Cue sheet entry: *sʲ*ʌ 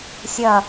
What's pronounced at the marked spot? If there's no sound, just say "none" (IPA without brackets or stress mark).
sʲ